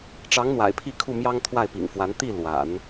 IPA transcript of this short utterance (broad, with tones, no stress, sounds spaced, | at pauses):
ʈ͡ʂ ɑ˧˥ ŋ n̪ w a̰˨˩ ɪ̯ pʰ i˥˧ kʰ u˥˩ m j ɑ˥ ŋ t̪ʰ w a˥˩ ɪ̯ p ḭ˨˩ ŋ f w a˧˥ n t̪ i˥˩ l w a̰˨˩˦ n